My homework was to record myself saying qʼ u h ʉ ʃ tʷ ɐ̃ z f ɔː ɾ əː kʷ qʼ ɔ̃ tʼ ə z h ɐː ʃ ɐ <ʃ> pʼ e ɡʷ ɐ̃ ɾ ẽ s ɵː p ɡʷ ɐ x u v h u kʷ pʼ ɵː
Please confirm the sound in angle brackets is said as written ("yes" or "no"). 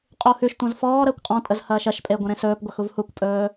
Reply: yes